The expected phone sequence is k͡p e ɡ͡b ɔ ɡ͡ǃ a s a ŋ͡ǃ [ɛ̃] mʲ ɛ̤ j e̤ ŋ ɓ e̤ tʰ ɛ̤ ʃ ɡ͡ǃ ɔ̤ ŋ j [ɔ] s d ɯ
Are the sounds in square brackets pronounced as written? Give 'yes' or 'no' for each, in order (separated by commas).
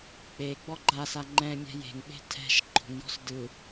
yes, no